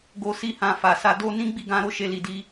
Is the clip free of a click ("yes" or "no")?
yes